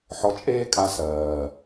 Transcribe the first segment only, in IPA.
ħ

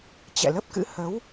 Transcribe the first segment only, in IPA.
t͡ɕ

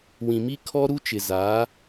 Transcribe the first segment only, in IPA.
w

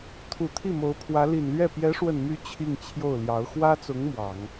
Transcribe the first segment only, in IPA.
t̪ʰ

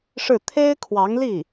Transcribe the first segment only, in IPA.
ʂ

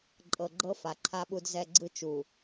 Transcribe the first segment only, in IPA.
ǃʼ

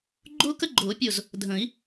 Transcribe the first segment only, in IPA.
ɡ͡ǃ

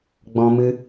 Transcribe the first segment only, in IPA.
ɡ͡b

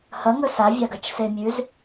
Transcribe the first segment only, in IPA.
h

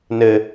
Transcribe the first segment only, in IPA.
n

